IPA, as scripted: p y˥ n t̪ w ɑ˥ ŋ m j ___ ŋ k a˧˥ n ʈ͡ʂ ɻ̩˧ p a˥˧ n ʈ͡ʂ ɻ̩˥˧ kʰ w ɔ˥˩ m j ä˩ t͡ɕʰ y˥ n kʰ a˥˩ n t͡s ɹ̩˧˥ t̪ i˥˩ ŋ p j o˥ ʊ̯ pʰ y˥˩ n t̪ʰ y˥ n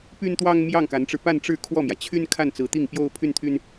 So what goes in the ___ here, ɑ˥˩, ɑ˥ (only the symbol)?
ɑ˥˩